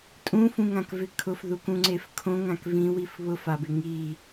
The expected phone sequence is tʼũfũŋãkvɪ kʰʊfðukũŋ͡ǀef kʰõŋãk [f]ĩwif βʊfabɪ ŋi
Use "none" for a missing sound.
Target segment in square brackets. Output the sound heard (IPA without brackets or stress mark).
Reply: v